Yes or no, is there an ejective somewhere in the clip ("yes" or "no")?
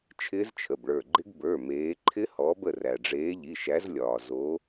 no